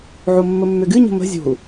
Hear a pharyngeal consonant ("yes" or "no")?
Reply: yes